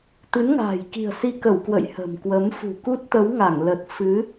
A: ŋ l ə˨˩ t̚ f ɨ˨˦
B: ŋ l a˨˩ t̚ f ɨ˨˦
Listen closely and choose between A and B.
A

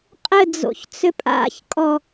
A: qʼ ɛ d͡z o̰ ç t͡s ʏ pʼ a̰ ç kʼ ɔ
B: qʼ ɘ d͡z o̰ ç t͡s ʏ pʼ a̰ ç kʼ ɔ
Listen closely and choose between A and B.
B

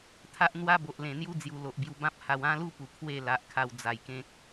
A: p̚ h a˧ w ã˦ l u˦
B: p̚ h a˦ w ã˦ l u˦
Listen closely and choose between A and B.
A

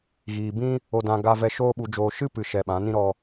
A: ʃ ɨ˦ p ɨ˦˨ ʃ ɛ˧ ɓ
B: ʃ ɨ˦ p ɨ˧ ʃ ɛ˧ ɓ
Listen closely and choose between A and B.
B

